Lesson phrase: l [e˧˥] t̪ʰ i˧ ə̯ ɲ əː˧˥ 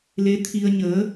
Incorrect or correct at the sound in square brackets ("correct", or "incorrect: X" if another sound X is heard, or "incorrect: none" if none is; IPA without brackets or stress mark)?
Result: correct